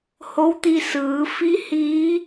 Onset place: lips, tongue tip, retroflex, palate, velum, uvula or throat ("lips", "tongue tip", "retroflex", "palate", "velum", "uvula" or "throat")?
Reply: throat